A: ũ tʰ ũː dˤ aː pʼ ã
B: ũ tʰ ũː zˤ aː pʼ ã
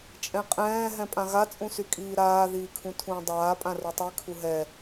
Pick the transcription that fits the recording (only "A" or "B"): A